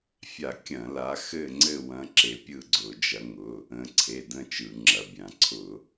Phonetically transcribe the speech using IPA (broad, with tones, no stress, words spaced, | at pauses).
fʲa˧˩˧ kʲɐ̃˧˩˧la˨˦ xɘ˦˨ ŋ͡ǀɘ˦˨wɐ̃˨˦ ǁe˨˦pʲɯ˦˨ɡ͡ǀʊ˧˩˧ d͡ʒɐ˨˦ŋʊ˩˧˩ | ə̃˨˦ ǀʰe˩˧˩də̃˦˨ t͡ʃɯ˧˩˧ŋ͡ǁɐ˩˧˩bʲã˧˩˧ ǀʰʊ˧˩˧